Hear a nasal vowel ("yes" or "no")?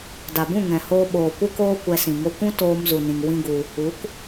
yes